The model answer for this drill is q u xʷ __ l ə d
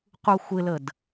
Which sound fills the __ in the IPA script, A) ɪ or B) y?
A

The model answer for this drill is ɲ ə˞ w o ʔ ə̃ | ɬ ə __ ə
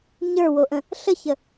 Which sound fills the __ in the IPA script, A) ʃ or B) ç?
B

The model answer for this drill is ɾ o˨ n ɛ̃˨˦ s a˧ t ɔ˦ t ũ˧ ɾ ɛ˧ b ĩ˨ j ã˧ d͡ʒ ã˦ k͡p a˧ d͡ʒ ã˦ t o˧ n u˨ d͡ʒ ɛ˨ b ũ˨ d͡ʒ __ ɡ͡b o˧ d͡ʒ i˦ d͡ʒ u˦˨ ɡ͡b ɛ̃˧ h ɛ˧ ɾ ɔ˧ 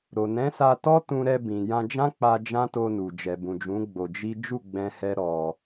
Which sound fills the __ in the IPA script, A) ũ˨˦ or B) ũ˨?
A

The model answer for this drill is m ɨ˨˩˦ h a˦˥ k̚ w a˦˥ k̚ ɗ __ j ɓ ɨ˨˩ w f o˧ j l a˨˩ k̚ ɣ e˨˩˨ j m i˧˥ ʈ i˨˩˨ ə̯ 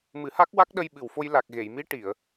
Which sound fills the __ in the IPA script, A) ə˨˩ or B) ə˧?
B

